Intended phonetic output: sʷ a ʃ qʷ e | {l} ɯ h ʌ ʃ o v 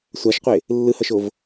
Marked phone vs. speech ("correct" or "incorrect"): incorrect